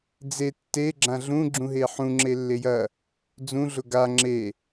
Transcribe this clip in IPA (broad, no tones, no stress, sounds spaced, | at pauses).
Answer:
d͡z e tː e ɡ͡ǁ ã ɮ ũ ɡ͡ǁ ũ ɦ e ħ ũ ŋ͡ǁ e lː e j ɐ | d͡z ũ ɮ ʊ ɡ a ŋ͡ǁ e